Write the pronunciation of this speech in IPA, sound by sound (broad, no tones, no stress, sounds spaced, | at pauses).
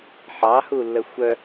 ħ ɑ h u lː ə xʷ œ